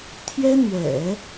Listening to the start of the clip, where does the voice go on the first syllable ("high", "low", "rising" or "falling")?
high